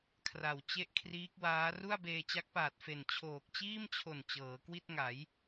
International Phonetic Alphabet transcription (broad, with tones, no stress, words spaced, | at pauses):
kʰra˨˩w t͡ɕe˥˩ʔkʰriː˦˥k̚waː˦˥ ru˥˩a̯beː˧t͡ɕa˦˥k̚paː˨˩t̚ fe˨˩n t͡ɕʰoː˨˩k̚t͡ɕiː˥˩mt͡ɕʰo˨˩n t͡ɕɤː˩˦kwi˥˩t̚ŋa˩˦j